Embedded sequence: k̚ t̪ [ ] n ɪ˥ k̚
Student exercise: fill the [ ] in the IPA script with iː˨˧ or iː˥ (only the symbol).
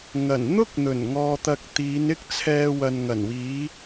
iː˨˧